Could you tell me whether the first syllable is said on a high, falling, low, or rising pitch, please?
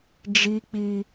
high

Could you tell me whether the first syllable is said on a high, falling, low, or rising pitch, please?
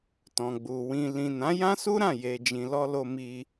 low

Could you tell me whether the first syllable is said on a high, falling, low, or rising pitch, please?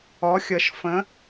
rising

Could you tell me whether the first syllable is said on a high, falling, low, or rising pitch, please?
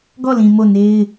falling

